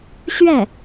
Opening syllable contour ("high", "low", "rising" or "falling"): falling